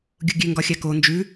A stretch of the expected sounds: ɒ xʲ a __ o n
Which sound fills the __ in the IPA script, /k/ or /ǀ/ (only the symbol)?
k